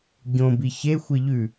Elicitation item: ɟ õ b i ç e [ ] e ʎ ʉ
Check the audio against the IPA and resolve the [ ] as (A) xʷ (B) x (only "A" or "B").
A